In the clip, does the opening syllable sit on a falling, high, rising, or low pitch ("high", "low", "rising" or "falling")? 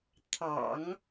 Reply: low